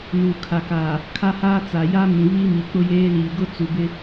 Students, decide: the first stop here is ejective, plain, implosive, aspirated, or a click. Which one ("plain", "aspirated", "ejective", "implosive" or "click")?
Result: aspirated